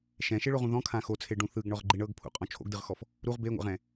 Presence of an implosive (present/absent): absent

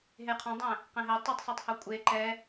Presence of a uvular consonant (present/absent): present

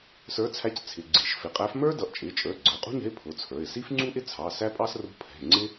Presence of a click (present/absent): present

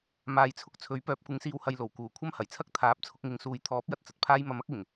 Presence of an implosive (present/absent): absent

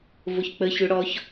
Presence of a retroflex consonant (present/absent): present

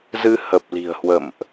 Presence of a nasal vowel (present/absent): absent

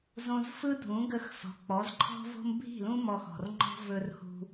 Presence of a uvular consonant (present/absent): absent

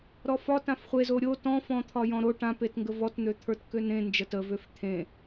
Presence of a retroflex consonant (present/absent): present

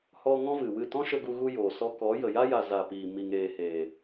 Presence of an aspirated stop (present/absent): absent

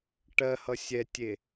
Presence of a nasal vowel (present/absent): absent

